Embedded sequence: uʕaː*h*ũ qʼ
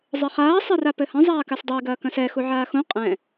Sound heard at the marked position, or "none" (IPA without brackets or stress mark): x